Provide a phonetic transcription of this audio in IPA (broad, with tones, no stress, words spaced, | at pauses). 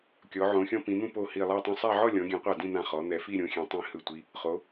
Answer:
kʲɔ˩˧ ʕõ˩˧xʲɔ̃˧ pĩ˩˧n̪ũ˥˧ po˧˩ hi˧˩lˠa˥˧ tˤɛ̃˧sˤa˥˧ ʕɔ˥˧lʲɔ̃˩˧ɡʲɛ̃˩˧qʷa˧˩ dĩ˥˧n̪ã˧˩ χɔ˩˧n̪ɛ˩˧ fi˥˧ɾʲõ˩˧xʲɛ̃˩˧ tˤĩ˧hɯ˧˩tʷi˧ | χo˩˧